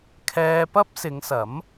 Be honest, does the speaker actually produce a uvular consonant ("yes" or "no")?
no